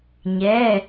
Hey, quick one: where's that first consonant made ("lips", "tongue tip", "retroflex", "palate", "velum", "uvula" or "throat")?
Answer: palate